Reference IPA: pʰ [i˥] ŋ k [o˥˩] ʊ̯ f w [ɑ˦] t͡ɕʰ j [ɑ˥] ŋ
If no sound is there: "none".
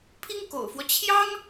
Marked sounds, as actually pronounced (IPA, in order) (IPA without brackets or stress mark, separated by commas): i˥, o̰˨˩, ɔ˦, ɑ˥